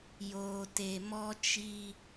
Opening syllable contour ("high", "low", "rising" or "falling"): low